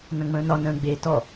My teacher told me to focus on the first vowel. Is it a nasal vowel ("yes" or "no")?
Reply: yes